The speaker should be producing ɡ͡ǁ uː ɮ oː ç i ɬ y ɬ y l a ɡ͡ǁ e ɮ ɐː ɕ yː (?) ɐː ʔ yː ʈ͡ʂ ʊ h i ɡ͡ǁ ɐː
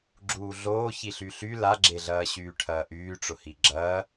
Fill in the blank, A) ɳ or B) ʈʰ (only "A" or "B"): B